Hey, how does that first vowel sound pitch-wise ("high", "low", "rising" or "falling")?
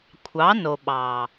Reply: rising